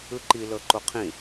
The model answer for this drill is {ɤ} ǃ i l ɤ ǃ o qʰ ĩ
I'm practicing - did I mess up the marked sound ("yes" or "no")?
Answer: yes